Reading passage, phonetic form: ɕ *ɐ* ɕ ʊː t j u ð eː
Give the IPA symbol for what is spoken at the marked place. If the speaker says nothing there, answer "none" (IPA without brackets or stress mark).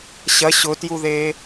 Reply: ɐ